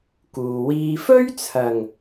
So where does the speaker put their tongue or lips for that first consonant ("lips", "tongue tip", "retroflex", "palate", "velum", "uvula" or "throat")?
velum